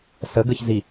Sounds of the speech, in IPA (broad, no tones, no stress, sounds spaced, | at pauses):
s ə ɡ ə ç z i